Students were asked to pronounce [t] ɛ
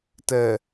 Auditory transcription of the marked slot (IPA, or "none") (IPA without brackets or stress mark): t